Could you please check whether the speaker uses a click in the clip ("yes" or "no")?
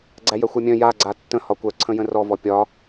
yes